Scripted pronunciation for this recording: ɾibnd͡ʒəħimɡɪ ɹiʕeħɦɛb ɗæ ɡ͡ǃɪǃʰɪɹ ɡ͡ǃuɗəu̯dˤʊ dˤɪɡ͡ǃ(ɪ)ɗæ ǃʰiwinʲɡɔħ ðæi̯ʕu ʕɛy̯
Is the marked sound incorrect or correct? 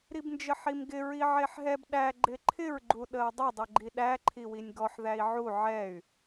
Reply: incorrect